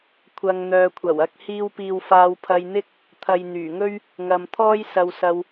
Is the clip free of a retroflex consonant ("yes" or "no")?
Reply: yes